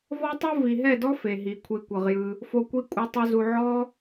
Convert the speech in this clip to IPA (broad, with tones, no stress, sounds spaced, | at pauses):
v ɔ˦ tˤ u˦ v i˨ ɦ ɛ˦˨ d ɔ˦ f e˨ ɦ i˨ kʷʰ e˨˦ kʷ ɤ˨ ʁ j ɯ˧ | f o˦ kʷ i˦ kʷʼ ɯ˧ tˤ u˧ z u˧ ʕ ɔ˦